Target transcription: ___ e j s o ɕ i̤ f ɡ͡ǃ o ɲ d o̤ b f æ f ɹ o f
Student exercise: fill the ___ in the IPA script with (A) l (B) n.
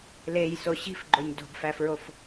A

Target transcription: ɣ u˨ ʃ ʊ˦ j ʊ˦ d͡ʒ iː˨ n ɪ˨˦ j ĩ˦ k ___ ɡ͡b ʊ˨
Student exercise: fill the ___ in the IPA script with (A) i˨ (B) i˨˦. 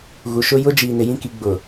B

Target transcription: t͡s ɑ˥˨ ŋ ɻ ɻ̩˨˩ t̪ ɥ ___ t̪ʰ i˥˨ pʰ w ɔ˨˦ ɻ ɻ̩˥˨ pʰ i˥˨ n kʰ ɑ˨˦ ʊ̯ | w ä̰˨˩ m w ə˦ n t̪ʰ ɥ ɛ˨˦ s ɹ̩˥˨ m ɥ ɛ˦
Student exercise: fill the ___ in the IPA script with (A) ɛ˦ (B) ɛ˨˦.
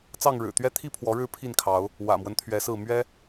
A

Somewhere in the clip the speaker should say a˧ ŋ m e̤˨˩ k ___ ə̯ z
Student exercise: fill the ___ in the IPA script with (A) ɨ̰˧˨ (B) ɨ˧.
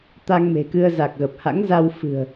B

